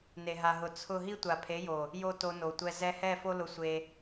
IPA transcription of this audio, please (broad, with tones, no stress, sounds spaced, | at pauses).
n e˨ ɦ a˨ ɦ ʊ˨ t͡sʰ ʊ˦˨ ɦ i˦ tʷ a˨ pʰ e˨˦ j o˨ | j o˦ t o˧ n o˨ tʷ ɛ˧ z ɛ˧ h ɛ˦˨ f o˦ l ʊ˧ sʷ e˧